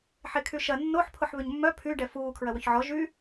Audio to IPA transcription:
ħ e kʰ y ʃ ɐ nː o ħ pʰ ʊ ħ β ʏ ɲ mː œ pʰ y ɖ ɛ f uː kʰ ɹ ɐ w ʏ ç ʕ ɔ ʒ y

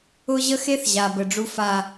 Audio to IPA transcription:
ʊ˦ ʑ ə˦ x e˦ θ ʑ a˨ b ə˨ ɖ͡ʐ u˦ f a˦

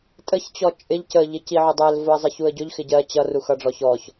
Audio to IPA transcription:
tʼ ə ç t͡ɕ ɔ t͡ʃʼ ɪ ʎ c ə ʎ ɪ c i ʕ ʊ dˤ ɛ l v ʊ ə̯ zˤ ɪ ç u ə̯ ɟ ʊ ʎ x ɪ ɟ ɜ t͡ɕ ʌ r u x ʌ ɖ͡ʐ ɔ ç ɔ ç

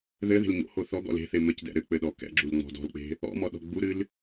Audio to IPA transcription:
ð ɘ ð e̤ l ɲ o̰ h o θ ɔ ɡ ɔ̰ l e̤ θ e m ɘ c d ɛ̰ ɾ ɘ k͡p ɘ ɗ ɔ k ɛ̰ ɡ͡ǁ u l ŋ͡m ɔ̤ d ɔ̤ l k͡p e̤ | ɔ̰ m ɔ ɗ ɔ̤ ɡ͡b u ɾ ɨ l

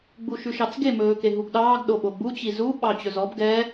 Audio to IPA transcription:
ɡ͡b u ʃ ʉ ʃ ɑ t͡s ɡ e m ɵː k e ɦ u ɡ ɗ ɑː ɡ ɗ o ɓ o ɡ͡b u t͡ɕ i z u ɓ ɑ t͡ɕ ɵ z ɔ b ɡ ɛ

